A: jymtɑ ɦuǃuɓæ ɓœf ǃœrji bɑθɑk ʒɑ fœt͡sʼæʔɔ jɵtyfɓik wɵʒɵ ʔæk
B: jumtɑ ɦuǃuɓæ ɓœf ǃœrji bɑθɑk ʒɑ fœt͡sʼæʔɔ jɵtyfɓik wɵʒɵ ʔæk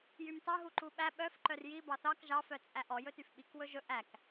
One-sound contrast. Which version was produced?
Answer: A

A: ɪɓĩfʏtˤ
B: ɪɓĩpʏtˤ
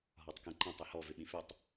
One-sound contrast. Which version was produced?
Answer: A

